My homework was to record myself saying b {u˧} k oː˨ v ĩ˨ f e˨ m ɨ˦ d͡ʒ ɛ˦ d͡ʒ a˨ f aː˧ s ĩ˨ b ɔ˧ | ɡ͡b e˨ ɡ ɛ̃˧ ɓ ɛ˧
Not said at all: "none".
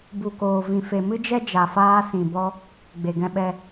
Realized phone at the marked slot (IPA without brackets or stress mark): u˨